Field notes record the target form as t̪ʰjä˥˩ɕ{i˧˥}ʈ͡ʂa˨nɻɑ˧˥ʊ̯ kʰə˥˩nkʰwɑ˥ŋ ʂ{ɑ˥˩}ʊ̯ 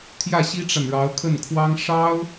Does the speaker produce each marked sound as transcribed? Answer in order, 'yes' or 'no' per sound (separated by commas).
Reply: no, no